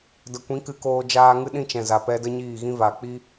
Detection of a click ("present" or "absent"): absent